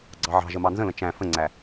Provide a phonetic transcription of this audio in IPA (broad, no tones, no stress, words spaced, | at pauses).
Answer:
ɡ͡ǀɑʕɑ̤ʒə mɑnzə̃lə̃ t͡ʃæ̃ fə̃ŋ͡ǀæ